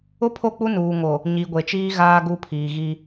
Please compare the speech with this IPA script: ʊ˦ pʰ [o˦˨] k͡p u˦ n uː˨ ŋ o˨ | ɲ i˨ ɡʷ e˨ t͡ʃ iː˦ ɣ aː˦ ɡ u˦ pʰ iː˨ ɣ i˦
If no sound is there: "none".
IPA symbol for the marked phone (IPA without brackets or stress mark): o˦˨